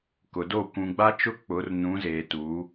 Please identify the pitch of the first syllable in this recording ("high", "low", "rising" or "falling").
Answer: low